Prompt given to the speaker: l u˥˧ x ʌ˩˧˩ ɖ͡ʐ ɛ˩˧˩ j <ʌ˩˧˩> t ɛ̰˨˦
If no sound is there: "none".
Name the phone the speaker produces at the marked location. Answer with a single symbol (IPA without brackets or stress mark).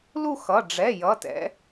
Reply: ʌ˩˧˩